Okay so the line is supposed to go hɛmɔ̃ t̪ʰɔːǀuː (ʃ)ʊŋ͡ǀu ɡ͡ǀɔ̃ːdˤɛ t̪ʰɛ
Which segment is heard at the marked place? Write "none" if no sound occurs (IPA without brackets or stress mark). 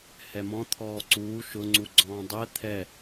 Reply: ʃ